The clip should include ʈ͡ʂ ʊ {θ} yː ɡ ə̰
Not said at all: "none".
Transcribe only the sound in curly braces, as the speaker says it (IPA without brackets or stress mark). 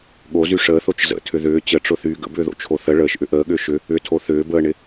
θ